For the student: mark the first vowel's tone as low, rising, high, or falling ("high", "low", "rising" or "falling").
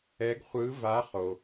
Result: rising